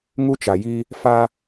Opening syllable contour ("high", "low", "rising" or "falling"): high